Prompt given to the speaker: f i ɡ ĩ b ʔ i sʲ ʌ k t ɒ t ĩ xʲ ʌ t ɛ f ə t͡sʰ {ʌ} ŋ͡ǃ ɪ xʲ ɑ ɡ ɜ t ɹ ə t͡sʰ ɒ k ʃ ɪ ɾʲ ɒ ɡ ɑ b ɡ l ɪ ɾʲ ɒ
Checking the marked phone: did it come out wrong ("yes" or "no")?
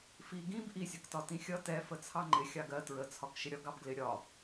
yes